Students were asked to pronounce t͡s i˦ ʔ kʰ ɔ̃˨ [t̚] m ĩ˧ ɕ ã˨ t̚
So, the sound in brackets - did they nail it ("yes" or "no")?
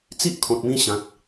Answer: yes